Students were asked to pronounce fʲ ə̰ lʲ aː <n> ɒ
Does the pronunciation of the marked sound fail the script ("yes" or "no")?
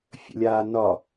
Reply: no